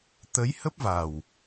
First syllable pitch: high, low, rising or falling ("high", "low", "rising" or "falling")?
rising